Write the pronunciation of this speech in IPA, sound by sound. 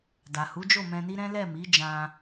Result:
d a˨ h u˨˦ d͡ʒ o˦˨ m ɛ̃˧ n i˦ ɾ ɛ̃˦ l ɛ˦˨ m i˨˦ d͡ʒ ã˧

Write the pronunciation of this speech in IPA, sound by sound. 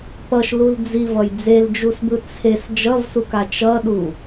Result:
p ʌ ʃ l u l d͡z i v ʌ j d͡z e l d͡ʒ u s b ɯ t͡sʰ e s d͡ʒ ʌ v s u k a t͡ʃ ʌ ɗ u

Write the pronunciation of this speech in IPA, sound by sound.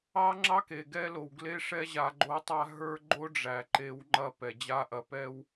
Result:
ɑ˦ ŋ͡ǁ ɑ˦ k e˨ ɡ ɛ˦ l o˨ w ɡ l e˦ ʂ ɛ˦ ʑ a˨ ɡ͡ǃ o˨˦ tˤ a˧ ɦ ə˞˦ ɡ͡ǃ o˦ ɖ͡ʐ æ˨ ǃ e˨˦ w ŋ͡ǃ ɐ˧ p ɛ˨ d͡ʑ a˧ ʔ ɐ˨ p ɛ˦ w

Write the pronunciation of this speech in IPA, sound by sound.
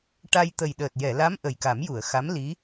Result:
ʈ a˧ j t̪ ə˨˩ j ɗ əː˨˩ t̚ j ɛ˨˩˨ l a˧˥ m ʔ ə˨˩ j k a˨˩˦ m j u˨˩˨ ə̯ x a˧˥ m l i˧˥

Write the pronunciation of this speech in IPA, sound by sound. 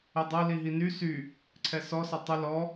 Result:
ə dˤ ʌ l i ɦ i n y s y | ǀʰ ɛ s ɔ s ʌ tˤ ʌ l ɔ

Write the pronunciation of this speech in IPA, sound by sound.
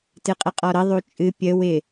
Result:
t ɨ qʼ ə qʼ ɔ ɾ ə ðˤ u t͡ʃʼ ɨ pʲ ə w ɪ

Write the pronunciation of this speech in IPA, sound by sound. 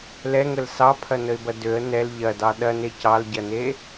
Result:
l ɛ ŋ ə l s ɑ pʰ ɐ n ə ɪ̯ b ɐ d ø ə̯ n ɛ l ʎ ɐ d ɑ ɗ ɐ n e c ɑ l ɟ ɐ n e

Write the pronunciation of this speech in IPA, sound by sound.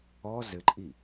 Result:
ɔ z ɘ ǃʼ i

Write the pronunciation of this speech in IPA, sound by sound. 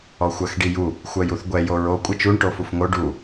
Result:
ɔ xʷ ɜ x ɖ i j u | xʷ ɜ j u θ ɡʷ ɛ j o ɹ o kʷʼ ɘ t͡ʃ u ɳ ʈ o f u f ŋ o ɖ u

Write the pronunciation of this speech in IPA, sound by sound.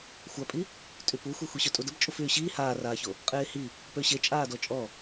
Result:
xʷ a pʼ i | tʼ y p u xʷ e xʷ i ɕ ø tʼ u d ə b t͡ʃʼ u f yː ɕ iː h aː r aː ç o | qʼ eː h i | p ø ɕ e t͡ʃʼ aː d ɔ t͡ʃʼ ɔ

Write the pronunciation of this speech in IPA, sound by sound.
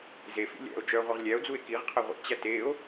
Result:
z e f ḭ lʲ æ̰ o̯ d͡ʒ œ ʁʷ i ʁ lʲ æ o̯ d͡z u e̯ k i ʁ qʰ ɛ ʁʷ ḭ t͡ɕ æ t e o̯

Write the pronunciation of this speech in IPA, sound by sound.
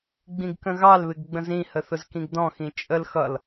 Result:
ɡ͡b ĩ ɡ k ə̃ ɣ ɑ l β ɪ ɡ ɡ͡b ə̃ z ĩ h ə θ ʊ z k ĩ ɡ d ɔ̃ x ĩ t͡ʃʼ ə l x ʌ l

